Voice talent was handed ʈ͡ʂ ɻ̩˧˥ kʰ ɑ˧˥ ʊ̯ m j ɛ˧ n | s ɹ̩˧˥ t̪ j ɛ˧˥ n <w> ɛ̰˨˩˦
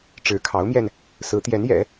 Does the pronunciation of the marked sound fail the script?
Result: yes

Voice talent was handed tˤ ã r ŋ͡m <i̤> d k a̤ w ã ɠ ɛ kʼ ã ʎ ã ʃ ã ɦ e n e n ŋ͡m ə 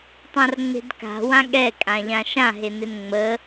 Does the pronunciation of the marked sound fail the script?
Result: yes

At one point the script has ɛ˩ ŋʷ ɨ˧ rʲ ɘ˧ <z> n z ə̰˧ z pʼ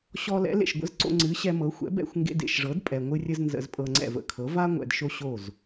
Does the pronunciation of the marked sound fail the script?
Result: no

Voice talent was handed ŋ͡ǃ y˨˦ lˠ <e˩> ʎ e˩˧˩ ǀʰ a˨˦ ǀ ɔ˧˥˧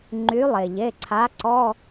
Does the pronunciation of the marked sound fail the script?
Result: no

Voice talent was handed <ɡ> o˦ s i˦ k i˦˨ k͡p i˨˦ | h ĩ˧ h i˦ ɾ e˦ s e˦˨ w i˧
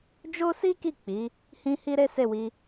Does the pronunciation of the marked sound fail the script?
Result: yes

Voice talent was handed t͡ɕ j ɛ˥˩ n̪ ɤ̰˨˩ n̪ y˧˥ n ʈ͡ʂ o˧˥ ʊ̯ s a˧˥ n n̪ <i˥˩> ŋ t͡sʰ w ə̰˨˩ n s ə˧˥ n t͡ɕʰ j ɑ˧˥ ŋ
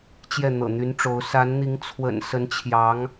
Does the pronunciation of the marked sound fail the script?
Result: yes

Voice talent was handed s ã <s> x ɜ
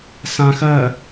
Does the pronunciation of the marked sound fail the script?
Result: yes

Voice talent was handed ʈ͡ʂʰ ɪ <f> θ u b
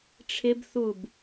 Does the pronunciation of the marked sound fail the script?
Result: yes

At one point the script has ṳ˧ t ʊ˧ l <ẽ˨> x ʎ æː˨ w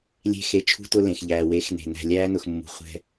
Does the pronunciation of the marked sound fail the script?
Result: no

